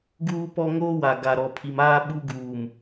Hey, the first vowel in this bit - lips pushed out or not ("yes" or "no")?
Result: yes